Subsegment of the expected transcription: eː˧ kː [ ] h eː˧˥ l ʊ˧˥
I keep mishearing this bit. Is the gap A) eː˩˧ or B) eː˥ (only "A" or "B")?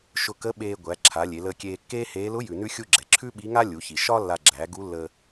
B